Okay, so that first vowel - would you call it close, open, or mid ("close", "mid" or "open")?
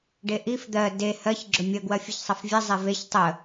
mid